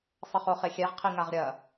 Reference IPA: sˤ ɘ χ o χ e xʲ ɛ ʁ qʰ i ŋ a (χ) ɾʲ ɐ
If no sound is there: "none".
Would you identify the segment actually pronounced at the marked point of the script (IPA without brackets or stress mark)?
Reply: ʁ